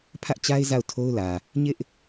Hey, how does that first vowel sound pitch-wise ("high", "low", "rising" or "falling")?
high